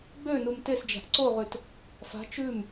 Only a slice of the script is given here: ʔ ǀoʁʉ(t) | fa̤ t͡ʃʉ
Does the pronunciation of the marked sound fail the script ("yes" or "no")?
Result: no